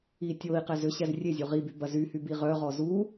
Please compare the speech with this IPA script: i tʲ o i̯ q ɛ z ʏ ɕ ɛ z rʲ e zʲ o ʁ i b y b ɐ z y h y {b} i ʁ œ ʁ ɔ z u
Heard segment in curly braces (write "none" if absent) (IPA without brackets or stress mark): b